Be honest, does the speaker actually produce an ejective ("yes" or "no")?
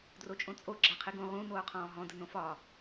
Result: yes